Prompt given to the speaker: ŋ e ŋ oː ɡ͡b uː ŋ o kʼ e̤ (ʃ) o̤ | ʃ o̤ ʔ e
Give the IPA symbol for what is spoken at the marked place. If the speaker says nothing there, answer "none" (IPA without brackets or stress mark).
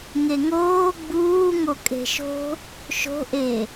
ʃ